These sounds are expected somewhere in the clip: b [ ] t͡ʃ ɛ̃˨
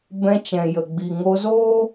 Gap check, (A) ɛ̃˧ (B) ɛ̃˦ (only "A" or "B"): A